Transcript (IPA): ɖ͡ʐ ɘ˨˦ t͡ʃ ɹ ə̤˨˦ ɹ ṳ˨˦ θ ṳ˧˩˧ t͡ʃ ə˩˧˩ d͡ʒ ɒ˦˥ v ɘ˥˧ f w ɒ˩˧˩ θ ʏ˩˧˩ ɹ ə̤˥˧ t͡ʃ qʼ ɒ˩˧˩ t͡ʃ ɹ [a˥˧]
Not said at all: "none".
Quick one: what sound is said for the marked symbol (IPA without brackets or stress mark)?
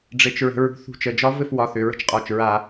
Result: a˧˩˧